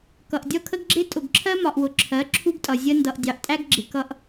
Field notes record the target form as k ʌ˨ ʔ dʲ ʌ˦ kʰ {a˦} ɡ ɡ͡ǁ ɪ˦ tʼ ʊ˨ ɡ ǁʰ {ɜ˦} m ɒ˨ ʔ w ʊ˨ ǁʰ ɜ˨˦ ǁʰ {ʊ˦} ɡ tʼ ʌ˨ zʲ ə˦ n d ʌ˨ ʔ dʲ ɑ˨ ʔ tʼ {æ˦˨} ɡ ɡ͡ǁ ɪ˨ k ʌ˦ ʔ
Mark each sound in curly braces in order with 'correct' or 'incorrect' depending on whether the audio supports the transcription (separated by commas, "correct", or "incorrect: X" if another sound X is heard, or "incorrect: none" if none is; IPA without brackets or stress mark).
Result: incorrect: ə˦, correct, incorrect: u˦, incorrect: æ˦